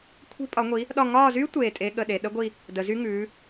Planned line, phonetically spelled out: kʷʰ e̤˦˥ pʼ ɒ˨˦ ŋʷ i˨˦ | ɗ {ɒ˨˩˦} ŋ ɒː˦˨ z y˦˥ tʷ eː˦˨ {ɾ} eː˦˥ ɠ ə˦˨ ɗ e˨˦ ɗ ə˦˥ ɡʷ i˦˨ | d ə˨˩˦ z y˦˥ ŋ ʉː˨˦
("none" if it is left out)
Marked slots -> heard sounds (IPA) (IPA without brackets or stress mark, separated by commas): ɒ˦˨, tʼ